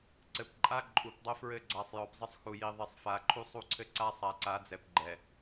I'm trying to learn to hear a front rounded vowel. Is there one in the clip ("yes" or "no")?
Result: no